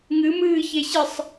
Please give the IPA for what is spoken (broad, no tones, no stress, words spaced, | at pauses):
ŋɨ mɨːçeɕɨsˤ